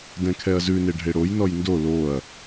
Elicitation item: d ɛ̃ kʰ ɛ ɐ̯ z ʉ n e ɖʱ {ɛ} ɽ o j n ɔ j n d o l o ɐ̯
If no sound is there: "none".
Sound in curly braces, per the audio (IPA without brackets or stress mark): e